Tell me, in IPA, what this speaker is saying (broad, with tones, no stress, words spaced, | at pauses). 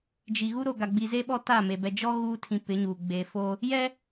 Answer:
d͡ʒi˨ ɣu˦ɾo˨ɡa˨ ɡ͡bi˨ze˦ ɓɔ˦ta˦˨me˨ bɛ˨d͡ʒɔ˦ ɣuː˦ tʰĩ˨ pɪ˨˦ɲuː˨ ɡ͡be˨fo˦ | jɛ˦